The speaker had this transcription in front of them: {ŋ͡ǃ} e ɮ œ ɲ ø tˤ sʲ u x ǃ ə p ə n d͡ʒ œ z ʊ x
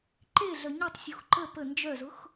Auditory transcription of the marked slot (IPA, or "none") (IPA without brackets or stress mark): ǃ